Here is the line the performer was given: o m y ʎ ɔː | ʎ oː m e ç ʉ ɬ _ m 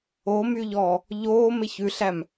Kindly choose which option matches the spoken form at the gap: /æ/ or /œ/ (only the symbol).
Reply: æ